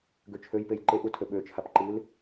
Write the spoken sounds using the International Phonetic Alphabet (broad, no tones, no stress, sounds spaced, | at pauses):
ɡ ø t͡ʃʰ ø j p e j ǃ e ʔ u tʰ ø ɓ ø t͡ʃʰ a p ǃ ɨ l